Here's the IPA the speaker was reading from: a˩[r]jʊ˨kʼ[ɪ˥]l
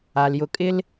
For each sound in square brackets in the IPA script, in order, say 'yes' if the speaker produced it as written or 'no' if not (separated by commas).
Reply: no, yes